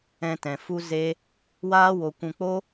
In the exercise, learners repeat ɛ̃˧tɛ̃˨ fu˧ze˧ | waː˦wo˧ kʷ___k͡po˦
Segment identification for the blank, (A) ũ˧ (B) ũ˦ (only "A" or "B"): A